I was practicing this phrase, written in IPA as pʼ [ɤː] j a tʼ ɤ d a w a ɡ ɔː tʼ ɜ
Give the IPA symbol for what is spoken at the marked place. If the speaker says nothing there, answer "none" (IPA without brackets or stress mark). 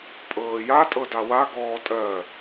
ɤː